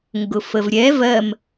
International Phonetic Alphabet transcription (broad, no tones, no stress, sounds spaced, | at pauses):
ŋ ɡ ʊ f ə v ɾʲ ɛ v ɜ m